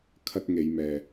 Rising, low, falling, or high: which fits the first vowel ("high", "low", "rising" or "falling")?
high